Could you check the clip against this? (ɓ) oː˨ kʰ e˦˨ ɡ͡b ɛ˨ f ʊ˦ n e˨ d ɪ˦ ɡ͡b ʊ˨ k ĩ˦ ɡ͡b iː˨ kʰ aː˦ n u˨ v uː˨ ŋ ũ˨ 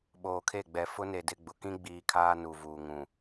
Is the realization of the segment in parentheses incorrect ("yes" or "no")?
no